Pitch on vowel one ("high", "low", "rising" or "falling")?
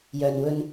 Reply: low